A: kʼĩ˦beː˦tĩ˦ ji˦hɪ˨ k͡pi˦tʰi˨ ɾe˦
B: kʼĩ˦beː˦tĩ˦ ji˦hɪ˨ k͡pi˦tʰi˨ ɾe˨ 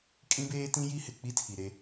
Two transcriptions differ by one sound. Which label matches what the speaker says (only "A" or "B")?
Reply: A